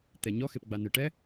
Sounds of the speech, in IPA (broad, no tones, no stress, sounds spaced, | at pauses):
t̪ ɛ ɲ ɔ x e p ɡ͡b a n ɯ ʈ ɛ